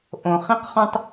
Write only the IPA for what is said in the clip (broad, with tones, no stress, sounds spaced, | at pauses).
ʔ õ˩ χ ĩ˥ q χ õ˥ tˤ